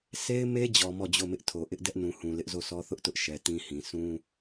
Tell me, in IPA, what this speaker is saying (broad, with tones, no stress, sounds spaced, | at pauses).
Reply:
sʰ e˦ ɪ̯ m e˦ d͡ʑ ɔ˨ m ɔ˦˨ d͡ʑ o˦˨ m ɪ˦ ʔ tʰ o˨ ʔ ɪ˦ ʔ d ɛ˦ ʔ n ũ˨ h ũ˨ l ɪ˦ ʔ z o˦˨ sʰ ɔ˦ θ ʊ˦ ʔ t ʊ˦ ʔ ʃ ɛ˨ t ĩ˦ h ĩ˨ sʰ ũ˦